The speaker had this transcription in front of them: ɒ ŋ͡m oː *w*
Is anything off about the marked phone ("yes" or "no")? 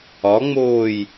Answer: yes